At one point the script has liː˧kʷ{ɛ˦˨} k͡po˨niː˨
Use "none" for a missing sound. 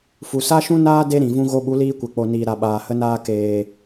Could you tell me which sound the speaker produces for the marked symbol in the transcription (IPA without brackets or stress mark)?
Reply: ɛ˨